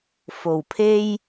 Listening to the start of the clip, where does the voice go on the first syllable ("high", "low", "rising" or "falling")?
low